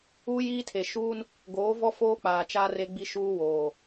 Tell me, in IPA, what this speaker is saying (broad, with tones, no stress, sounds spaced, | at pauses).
uː˦ j iː˦ tʰ e˨ ʃ uː˦ n | ɡ oː˨˦ v ɔ˦ f oː˦ k͡p aː˨ t͡ʃ aː˦ r e˦ ɡ͡b i˦ ʃ uː˦ w oː˨